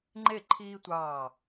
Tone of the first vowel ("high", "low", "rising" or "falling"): falling